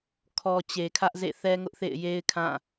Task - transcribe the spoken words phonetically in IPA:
kʰ ɔ˨ t͡ɕ e˨ kʰ ä˦ ʔ z ḛ˦˨ θ ɛ˦ ŋ ʊ˦ ʔ θ ḛ˦˨ ɪ̯ j e˦ ɪ̯ kʰ ã˦˨

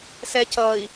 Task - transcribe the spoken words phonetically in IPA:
s ɛ c ʌː i̯

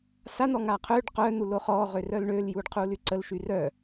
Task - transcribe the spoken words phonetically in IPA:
s a n̪ ɔ ŋ a qʰ ø ɖ q œ n̪ u l o χ ɔː ʁ ø r œ l ɳ ø l j uː ɖ qʰ uː l y ǀ ə l ʃ y r œ

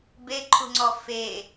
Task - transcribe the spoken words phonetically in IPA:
b e ǃʰ ṳ ŋ͡ǀ ɔ f e

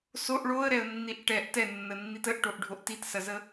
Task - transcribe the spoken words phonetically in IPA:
s o ʔ ɭ o ə̯ ɾ ɛ ə̯ nː i ʔ ʈ ɛ ʔ t ɛ nː ə nː i t ə ʔ ʈ o ʔ ɖʱ o ʔ t i t s ɐ z ə

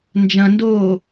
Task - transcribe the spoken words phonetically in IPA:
n d͡ʒ ɐ̃ n d oː

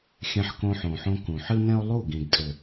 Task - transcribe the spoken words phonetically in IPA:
xʲ ɛ̃˧ ħ k õ˧ ħ õ˨ ħ õ˧ k ũ˨ ħ ɨ˦ n ɛ̃˦ o̯ lˠ u˦˨ ɡ ĩ˨ ɡ tʼ ɘ˨

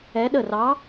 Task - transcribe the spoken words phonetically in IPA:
ɛ˧˥ ɗ ə˦˨ r ɑ˧˥

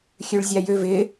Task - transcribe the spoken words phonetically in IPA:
xʲ ø ɭ zʲ a j ø v ɪ

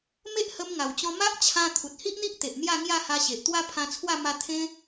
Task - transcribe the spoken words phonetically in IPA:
m e˦ ʔ h ə˧ m ŋ a˨˩ w t͡ɕ ɔ̃˧ m a˦ ʔ t͡ɕʰ ã˧ t̪ʰ u˨ t̚ h i˦ ʔ n̪ i˦ ʔ t̪ e˨ ʔ n̪ j a˥˧ ŋ j a˥˧ h a˧ ɕ e˨ ʔ t̪ w a˦ pʰ ã˧ t͡sʰ w a˥˧ m a˧ t̪ʰ ẽ˦

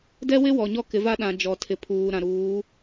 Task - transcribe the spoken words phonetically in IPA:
d ɛ˦ w ɪ˦ w ɔ˨ ɲ ɔ˦ k ɪ˨˦ v a˦ ɗ ã˨ d͡ʒ ɔ˨ tʰ ɪ˨ pʰ uː˨ ɾ ã˨ ɾ uː˨˦

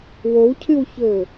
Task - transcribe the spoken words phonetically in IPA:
w o w cʰ ɨ w ç ɵː

